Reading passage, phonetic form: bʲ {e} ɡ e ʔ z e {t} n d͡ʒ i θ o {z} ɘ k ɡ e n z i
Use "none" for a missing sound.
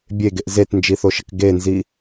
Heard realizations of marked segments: e, t, ʃ

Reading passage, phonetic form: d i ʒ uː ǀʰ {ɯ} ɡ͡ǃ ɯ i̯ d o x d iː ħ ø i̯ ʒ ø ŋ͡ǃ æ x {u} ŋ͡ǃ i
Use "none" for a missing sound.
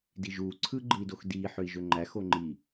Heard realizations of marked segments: ɯ, o

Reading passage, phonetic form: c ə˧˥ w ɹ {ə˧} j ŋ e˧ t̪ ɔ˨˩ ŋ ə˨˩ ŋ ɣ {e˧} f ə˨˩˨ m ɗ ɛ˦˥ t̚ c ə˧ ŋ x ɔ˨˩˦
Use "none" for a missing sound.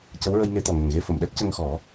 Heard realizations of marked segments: ə˧, e˧

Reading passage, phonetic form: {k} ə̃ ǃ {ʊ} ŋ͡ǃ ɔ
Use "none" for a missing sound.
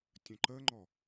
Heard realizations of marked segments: tʲ, ə

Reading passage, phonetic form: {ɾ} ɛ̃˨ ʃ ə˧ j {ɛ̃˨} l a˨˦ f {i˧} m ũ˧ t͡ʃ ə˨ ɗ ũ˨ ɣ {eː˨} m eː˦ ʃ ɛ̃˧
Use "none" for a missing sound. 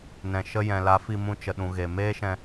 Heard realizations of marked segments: n, ɛ̃˨, i˧, e˨

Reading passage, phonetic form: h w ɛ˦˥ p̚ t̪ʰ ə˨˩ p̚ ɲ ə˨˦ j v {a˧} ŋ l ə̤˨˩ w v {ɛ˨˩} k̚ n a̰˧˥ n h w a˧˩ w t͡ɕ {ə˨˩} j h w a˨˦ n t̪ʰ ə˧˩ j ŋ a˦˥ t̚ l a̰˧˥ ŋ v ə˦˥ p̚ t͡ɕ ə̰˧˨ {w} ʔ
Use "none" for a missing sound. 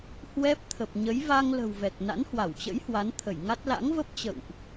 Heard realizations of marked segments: a˧, ɛ˨˩, ə̰˧˥, w

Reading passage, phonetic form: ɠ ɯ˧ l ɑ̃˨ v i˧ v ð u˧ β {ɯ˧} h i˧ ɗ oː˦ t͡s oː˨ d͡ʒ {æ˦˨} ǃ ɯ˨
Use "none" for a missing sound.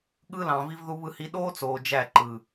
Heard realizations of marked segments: ɯ˧, æ˦˨

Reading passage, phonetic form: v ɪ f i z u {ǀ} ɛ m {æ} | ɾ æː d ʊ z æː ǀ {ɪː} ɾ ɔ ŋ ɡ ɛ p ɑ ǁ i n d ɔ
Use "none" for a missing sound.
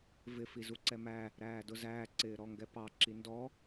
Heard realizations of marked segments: ǀ, æ, ɪː

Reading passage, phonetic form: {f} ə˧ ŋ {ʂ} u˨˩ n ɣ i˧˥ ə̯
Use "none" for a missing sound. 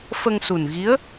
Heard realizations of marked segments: f, s

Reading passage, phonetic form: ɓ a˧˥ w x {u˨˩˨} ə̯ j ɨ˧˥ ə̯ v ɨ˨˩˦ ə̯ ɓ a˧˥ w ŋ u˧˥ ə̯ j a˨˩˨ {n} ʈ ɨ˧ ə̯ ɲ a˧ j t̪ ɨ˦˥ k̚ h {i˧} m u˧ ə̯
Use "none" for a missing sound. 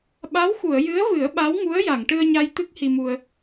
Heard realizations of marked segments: u˨˩˨, ŋ, i˧

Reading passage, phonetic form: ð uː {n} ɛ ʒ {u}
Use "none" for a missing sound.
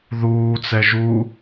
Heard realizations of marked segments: t͡s, u

